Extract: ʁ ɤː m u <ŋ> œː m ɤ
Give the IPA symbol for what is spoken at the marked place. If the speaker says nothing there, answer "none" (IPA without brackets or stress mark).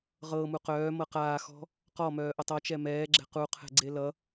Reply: q